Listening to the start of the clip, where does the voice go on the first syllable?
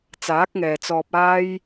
rising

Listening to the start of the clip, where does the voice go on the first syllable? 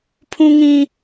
high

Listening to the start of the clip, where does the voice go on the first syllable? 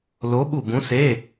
rising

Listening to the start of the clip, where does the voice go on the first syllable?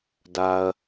low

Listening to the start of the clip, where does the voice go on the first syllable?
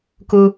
high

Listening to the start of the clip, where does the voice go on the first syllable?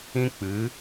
high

